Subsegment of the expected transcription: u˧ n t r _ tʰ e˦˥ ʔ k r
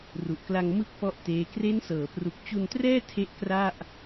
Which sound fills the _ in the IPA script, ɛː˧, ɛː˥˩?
ɛː˥˩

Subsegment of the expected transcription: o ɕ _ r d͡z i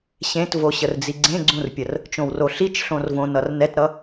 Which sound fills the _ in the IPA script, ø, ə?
ə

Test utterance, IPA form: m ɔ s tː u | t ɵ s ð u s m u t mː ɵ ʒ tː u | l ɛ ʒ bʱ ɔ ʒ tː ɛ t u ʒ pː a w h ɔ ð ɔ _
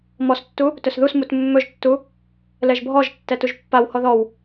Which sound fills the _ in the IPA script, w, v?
w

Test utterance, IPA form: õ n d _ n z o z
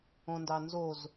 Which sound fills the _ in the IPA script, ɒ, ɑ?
ɑ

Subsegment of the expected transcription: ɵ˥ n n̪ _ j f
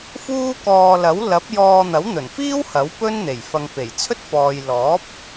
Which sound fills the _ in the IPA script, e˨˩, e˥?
e˨˩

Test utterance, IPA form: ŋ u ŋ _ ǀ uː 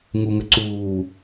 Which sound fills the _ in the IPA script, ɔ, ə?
ə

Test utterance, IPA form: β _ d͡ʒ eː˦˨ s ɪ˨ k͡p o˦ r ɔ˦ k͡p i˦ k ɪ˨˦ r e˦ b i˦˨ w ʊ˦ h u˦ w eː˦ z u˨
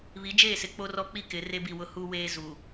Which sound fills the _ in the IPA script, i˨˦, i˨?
i˨˦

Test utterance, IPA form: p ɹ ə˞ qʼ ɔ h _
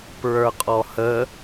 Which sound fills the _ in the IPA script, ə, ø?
ə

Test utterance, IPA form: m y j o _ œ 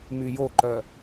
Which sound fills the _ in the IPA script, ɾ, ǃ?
ǃ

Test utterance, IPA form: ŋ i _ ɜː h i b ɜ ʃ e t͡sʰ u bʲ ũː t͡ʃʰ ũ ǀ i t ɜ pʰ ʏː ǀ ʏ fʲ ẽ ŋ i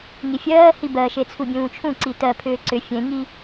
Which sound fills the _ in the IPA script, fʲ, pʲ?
fʲ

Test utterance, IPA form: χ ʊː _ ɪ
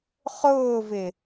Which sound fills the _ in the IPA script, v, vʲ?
v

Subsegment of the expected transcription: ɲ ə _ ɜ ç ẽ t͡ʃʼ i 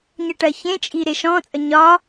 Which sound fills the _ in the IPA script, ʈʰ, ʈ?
ʈ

